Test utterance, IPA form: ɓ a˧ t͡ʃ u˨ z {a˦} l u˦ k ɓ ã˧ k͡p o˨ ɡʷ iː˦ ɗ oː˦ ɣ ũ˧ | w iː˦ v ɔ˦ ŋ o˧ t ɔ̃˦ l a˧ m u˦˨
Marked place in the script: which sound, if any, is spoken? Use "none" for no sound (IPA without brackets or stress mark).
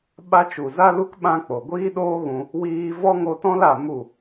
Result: a˦